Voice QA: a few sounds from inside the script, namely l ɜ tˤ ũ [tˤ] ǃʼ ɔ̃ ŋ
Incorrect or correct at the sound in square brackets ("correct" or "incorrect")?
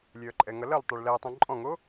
incorrect